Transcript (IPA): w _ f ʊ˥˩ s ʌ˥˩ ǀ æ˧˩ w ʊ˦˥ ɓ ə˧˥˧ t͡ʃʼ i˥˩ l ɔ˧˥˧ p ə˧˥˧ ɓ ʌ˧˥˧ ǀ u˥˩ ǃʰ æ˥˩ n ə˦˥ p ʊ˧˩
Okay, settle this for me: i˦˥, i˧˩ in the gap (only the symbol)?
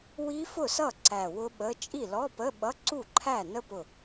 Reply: i˦˥